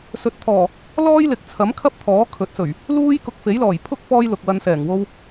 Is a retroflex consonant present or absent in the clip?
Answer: absent